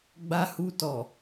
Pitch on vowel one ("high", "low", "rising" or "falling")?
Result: low